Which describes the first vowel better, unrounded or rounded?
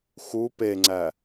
rounded